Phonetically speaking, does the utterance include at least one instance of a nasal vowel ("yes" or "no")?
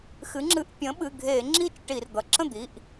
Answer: yes